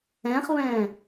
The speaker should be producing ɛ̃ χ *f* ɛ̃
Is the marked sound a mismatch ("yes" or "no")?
yes